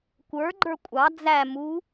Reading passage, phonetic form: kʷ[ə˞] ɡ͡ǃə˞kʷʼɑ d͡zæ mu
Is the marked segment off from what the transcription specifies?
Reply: no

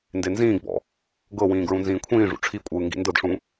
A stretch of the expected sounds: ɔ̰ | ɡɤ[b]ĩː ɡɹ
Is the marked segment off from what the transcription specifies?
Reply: yes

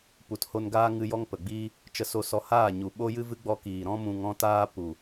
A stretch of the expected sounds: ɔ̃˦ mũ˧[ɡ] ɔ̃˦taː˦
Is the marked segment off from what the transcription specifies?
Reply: yes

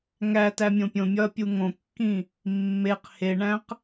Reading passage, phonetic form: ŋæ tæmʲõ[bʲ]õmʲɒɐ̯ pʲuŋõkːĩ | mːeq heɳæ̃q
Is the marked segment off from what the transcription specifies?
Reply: yes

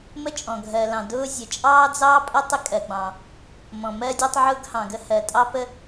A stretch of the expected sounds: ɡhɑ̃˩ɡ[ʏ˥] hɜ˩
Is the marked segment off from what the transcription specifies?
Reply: yes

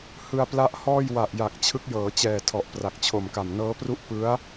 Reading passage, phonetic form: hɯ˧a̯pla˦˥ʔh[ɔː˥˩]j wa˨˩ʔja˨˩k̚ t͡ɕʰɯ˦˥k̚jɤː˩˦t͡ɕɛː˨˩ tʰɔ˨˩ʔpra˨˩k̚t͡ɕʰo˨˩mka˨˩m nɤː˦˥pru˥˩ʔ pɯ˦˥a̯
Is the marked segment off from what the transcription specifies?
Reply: no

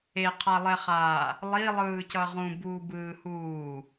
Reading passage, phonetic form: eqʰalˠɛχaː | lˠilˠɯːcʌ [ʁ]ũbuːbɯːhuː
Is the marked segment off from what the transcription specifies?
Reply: no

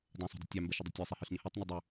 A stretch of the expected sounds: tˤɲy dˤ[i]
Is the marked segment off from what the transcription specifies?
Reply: yes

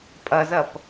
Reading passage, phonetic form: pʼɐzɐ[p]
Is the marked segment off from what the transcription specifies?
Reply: no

